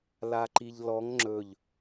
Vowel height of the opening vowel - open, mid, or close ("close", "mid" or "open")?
open